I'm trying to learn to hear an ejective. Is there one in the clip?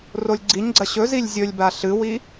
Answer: no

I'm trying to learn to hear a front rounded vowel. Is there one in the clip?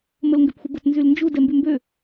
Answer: yes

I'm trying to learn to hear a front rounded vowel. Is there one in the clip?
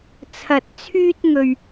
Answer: yes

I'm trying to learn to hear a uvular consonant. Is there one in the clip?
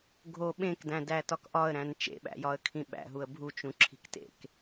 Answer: no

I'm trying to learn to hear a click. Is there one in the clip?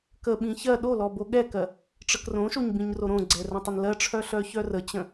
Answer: yes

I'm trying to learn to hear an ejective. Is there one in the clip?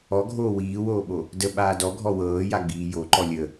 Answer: no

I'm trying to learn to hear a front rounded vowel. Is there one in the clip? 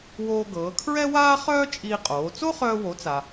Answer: yes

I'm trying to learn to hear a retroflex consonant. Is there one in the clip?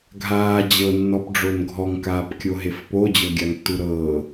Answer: yes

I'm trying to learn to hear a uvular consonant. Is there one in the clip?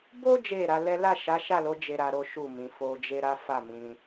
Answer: no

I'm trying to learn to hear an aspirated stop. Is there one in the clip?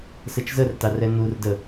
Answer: no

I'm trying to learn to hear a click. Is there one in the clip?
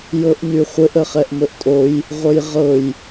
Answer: no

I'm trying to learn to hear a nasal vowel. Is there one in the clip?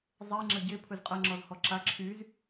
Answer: no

